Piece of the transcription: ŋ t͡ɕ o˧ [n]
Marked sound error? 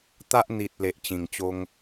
yes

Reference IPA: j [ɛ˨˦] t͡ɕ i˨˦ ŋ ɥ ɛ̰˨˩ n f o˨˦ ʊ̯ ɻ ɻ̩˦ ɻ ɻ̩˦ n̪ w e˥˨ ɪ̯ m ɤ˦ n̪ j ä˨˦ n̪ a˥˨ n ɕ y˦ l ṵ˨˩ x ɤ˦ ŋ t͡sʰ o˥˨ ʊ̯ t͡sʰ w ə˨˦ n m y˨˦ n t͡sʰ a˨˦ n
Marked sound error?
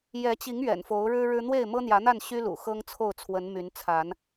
no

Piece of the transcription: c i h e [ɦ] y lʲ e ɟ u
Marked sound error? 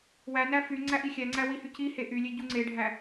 yes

